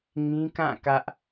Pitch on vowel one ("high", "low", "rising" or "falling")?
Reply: high